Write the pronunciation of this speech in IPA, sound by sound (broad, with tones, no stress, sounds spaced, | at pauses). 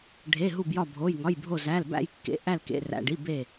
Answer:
ɖʱ e˩˧˩ ɦ u˧˩ b j ɒ˧˩ bʱ o˩˧˩ j ŋ ɒ˩˧˩ j bʱ o˧˩ z æ˩˧˩ l b æ̰˧˩ j kː ḛ˩˧˩ ʔ æ˧˩ l k ḛ˩˧˩ r æ̰˩˧˩ ɖ i˩˧˩ b e˧˩